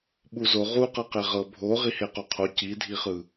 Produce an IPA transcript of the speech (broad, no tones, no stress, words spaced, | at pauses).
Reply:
ɓuzo ʁu qɤqeʁɤ bʱo ʁiheqoqʰo cidʱiχɯ